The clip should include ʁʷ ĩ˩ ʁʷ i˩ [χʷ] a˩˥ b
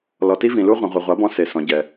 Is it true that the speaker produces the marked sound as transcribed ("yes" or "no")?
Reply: no